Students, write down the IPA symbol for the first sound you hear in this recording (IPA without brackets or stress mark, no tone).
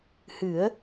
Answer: h